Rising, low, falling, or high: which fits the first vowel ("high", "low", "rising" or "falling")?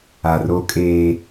low